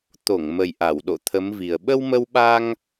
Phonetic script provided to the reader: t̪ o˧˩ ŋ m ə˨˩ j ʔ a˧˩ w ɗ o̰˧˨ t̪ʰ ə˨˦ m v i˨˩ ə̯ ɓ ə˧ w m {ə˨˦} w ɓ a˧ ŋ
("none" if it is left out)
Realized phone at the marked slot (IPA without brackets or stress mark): ə˧